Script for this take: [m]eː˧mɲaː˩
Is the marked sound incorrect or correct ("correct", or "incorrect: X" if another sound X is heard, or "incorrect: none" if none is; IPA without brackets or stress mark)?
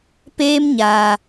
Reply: incorrect: p